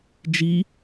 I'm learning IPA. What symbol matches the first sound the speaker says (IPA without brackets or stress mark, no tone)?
d͡ʒ